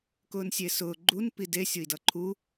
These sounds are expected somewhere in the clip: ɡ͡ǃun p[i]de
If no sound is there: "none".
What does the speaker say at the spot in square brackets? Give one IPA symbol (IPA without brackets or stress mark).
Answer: i